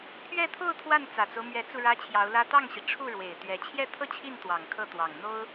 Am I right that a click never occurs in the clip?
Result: yes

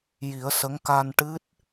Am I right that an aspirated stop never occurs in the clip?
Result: yes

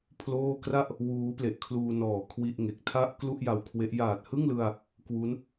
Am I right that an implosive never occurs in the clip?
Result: yes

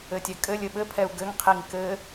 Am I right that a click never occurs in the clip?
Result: yes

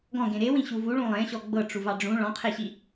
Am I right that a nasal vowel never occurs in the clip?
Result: no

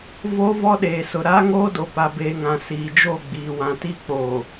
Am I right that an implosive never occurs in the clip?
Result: no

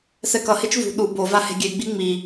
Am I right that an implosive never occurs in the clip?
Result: no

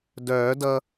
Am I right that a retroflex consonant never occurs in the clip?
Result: yes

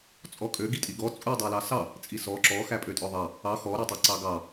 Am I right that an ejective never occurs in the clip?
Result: no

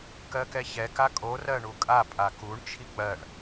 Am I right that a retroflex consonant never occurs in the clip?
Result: no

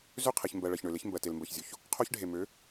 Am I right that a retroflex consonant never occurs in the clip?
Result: no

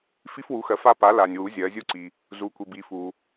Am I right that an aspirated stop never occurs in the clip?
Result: yes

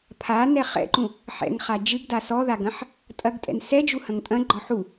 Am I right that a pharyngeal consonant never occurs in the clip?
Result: no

